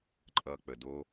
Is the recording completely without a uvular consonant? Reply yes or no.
yes